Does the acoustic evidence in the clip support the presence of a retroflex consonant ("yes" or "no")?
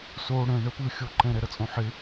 yes